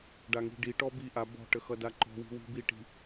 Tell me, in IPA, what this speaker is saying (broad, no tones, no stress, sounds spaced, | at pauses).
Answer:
ɖ a ŋ i̤ ɖ i ʈ ɔ b i ʔ a b ɔ̤ ʈ ə x ʌ d a ǃ ɔ̤ w i̤ w i̤ b i ʈ i̤